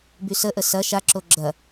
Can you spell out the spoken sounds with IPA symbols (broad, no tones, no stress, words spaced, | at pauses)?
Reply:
bysəʔə sɐ ʃaǁo ɡ͡ǁɐ